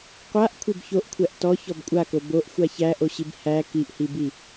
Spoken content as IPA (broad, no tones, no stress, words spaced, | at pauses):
qʷaʔ kʷʰebçoʔkʷʰæʔ tɔ çɔbkʷʼako boʔ xʷaçæʔoɕib hæ kiʔhibi